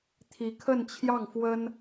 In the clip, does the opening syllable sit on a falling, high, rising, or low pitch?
rising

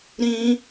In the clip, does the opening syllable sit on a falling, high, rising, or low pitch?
high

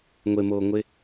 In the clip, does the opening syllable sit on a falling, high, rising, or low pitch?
low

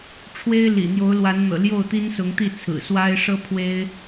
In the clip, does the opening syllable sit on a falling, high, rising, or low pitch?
high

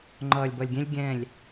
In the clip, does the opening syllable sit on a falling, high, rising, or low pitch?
low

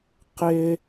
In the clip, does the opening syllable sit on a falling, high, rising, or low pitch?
high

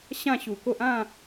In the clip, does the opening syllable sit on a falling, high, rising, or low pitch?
falling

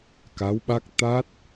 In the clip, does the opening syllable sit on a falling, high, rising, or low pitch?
rising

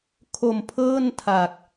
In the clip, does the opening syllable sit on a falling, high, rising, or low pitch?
low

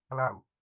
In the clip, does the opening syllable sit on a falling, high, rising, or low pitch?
falling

